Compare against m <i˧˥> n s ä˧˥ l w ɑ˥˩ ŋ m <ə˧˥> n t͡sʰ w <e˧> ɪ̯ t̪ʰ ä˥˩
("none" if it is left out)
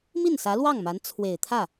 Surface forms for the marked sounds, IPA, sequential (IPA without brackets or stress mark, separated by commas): i˥˩, a˧˥, e˨˩